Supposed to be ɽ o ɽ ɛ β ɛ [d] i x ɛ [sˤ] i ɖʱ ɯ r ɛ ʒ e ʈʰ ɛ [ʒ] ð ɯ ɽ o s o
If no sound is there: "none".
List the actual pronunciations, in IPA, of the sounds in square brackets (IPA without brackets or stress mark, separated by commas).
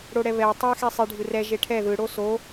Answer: tˤ, sˤ, none